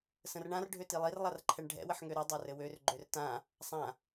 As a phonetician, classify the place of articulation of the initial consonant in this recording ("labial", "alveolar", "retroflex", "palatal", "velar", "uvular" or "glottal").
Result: alveolar